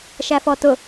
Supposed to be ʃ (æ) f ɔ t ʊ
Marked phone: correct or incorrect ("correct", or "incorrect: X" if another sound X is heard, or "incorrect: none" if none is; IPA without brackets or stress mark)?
correct